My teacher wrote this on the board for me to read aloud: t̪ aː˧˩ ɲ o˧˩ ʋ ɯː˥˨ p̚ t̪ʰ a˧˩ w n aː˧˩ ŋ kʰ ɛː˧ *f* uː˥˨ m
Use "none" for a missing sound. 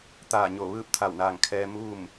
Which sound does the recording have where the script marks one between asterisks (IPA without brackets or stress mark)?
m